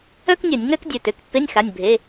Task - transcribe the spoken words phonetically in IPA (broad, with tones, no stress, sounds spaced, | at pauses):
œ˥ k nʲ œ˧˩˧ nʲ ŋ œ˥ k dʲ ø˩˧˩ t ø˩˧˩ k pː e˧˥˧ nʲ x a˩˧˩ nʲ bʱ e˩˧˩